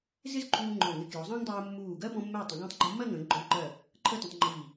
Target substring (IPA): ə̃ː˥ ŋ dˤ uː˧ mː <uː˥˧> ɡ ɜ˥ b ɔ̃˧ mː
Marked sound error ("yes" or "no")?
yes